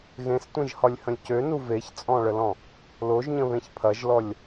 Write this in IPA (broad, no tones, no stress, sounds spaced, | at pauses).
ɣ ẽ s tʷ ẽ ʒ h ɒ lʲ h ə̃ lʲ c ø n u v e ç t͡sʼ ɔ̃ ɭ ə l ɔ̃ | l o ʒ ɲ ə̃ β ẽ ç pʰ ɐ ʒ l ɔ lʲ